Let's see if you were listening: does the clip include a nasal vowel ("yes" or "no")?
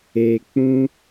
yes